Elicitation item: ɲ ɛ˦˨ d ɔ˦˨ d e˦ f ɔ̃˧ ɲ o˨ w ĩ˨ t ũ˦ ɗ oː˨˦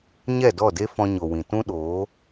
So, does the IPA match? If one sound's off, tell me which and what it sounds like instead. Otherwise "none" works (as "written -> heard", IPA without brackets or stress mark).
none